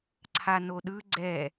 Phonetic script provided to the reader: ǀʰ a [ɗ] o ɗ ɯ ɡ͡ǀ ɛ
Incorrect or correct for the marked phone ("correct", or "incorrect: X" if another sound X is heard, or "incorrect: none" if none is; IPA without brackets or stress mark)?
incorrect: n